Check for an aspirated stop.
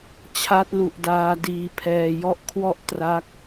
present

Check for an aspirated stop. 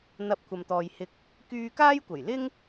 present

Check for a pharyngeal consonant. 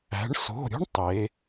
absent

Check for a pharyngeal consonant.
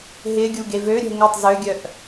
absent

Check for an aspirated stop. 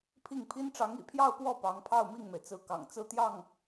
present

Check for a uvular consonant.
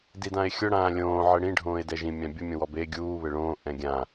absent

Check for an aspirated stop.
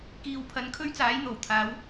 present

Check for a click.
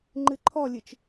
present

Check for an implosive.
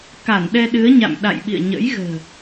present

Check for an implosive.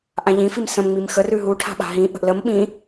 present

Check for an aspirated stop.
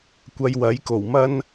absent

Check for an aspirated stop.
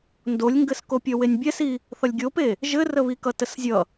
absent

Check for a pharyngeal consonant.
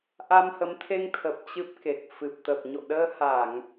absent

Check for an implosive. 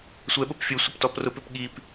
present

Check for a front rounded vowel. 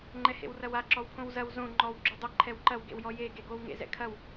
absent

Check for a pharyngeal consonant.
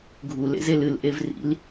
absent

